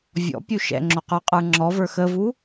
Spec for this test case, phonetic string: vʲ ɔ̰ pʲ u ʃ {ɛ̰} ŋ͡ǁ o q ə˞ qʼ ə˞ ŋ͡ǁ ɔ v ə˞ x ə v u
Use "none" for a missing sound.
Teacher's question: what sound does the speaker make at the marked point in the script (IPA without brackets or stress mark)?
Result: ɛ̰